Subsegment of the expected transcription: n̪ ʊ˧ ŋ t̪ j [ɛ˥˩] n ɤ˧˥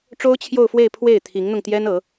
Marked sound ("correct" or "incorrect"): incorrect